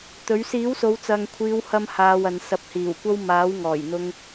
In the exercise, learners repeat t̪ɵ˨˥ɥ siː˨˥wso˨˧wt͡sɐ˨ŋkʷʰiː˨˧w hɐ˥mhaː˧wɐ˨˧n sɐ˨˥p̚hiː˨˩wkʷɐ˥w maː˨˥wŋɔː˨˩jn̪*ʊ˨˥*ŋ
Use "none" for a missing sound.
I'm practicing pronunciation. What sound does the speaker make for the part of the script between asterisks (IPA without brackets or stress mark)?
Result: ʊ˧